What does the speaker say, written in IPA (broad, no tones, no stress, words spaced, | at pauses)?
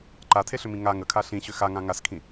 ǃatʰeɬʏmĩ ŋa ŋəkʰa ɬĩɕʏ xaŋã ŋaskʰĩ